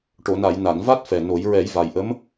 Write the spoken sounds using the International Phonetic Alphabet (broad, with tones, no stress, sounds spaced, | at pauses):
ʈ o˨˩˨ n a˨˩˨ j n a˨˩˨ n v a˦˥ t̚ f ɛ˨˩ n o˨˩˦ j ɹ ɛ˨˩˦ j v a˨˩ j ʔ ə˧˥ m